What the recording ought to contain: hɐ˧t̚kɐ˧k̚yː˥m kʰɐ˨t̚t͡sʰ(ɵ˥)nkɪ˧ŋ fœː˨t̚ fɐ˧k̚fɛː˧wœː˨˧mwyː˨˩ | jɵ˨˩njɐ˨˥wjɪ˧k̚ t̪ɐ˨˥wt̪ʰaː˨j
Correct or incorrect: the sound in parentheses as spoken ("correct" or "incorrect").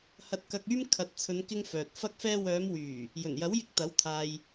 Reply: incorrect